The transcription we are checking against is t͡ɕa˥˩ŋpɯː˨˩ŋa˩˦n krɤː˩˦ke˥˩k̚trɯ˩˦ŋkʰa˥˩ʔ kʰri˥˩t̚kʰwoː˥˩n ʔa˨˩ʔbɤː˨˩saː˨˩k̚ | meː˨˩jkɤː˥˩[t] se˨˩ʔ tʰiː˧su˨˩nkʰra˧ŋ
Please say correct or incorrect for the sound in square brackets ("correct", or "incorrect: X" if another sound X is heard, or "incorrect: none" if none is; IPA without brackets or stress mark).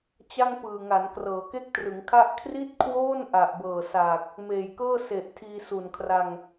incorrect: none